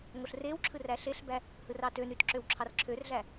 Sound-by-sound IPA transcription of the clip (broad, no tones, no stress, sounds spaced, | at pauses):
ŋ o ɬ r e w ǁʰ ɯ r æ ɬ e ɬ b æ | h ɯ r ɑ t ø n y t ǁ ø w ǁʰ ɑ r ǁʰ ø r ɮ æ